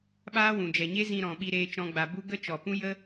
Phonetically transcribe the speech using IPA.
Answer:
ɓaː˦wũ˨d͡ʒɛ˨ ɲe˦zĩ˧ɾɔ̃˨ɓi˧ ɾeː˦t͡ʃɔ̃˦ɡ͡ba˧ bu˦ ɡə˦t͡ʃɔ˨pũ˦ jə˦

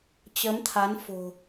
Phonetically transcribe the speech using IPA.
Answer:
t͡ɕəː˨˦m t̪ʰa˨˦n fo̤˨˩

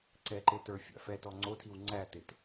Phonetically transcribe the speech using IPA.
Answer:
ǀɛ ǃetə˞fʲæ̰ fɛtɔ ŋ͡ǀotʰiw ŋ͡ǀætɪt

